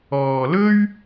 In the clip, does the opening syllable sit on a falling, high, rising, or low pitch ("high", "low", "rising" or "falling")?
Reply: low